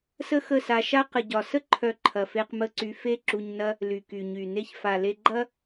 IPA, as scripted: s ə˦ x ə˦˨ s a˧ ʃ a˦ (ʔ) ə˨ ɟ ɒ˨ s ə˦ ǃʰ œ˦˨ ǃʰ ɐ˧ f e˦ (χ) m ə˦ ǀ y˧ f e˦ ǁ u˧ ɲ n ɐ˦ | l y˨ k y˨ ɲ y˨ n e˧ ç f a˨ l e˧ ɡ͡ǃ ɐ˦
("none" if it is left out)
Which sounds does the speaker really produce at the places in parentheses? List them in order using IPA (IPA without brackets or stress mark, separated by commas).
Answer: q, q